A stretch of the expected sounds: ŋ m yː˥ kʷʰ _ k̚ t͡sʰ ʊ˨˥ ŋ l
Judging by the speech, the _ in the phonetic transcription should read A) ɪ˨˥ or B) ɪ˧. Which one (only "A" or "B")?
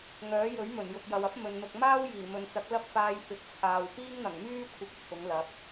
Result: A